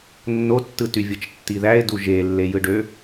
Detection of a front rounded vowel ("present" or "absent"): present